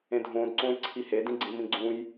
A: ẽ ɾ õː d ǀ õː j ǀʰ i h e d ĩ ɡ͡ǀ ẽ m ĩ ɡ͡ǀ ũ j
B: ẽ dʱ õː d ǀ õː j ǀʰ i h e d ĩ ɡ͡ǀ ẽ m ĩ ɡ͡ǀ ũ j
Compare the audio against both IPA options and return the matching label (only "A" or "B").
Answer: B